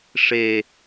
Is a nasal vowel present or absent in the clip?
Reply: absent